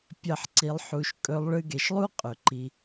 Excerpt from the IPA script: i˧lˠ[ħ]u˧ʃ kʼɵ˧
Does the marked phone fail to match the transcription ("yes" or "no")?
no